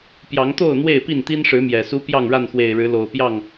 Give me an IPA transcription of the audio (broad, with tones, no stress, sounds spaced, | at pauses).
p j ɑ˨˦ ŋ t̪ o˥˨ ʊ̯ n̪ w e˥˨ ɪ̯ p i˥˨ n t̪ i˦ n ʂ ɻ̩˨˦ m j ɛ˨˩ s u˦ p j ɑ˥˨ ŋ ɻ a˥˨ n x w e˨˩ ɪ̯ ɻ ɻ̩˨˦ l o˨˩ ʊ̯ p j ɑ˥˨ ŋ